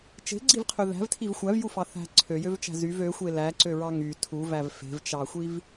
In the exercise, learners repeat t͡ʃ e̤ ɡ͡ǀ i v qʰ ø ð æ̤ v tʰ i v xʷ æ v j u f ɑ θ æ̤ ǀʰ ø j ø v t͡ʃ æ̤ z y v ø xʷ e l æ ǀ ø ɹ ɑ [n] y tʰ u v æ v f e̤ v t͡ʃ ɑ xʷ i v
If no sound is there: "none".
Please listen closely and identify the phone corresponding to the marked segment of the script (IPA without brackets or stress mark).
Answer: ŋ